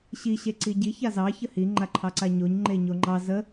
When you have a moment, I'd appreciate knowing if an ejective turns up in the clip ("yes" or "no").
no